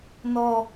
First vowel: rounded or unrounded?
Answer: rounded